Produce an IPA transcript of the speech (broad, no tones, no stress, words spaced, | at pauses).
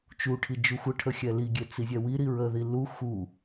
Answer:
t͡ʃuʈʰi d͡ʒuxʷəʈʰə xʲɛliɡʲe t͡sizʲɛwiɾi ɹəði lu xu